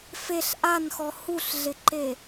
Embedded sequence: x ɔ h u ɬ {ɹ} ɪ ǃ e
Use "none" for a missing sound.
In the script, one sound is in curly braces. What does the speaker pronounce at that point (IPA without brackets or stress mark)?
ɮ